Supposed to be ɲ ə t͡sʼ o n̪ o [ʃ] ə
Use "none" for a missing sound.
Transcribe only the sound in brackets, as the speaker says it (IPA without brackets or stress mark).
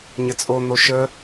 ʃ